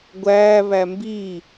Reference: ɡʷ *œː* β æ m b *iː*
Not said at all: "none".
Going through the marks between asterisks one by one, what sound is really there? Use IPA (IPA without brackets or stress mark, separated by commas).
æː, iː